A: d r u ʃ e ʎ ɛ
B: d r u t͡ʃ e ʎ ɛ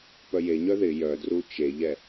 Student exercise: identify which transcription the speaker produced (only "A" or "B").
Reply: B